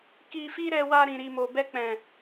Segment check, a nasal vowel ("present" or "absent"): present